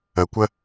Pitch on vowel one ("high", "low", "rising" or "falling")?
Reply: low